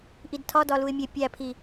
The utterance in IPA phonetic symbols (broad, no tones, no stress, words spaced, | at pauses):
ʔidtʰɒ dɒluɪ̯mʲe pʲæpʰi